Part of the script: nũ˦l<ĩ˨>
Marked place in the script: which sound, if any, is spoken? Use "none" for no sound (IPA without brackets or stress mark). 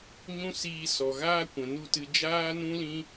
ĩ˦